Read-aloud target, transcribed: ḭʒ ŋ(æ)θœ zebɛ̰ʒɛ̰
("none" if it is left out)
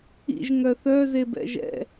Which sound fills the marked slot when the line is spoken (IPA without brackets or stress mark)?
œ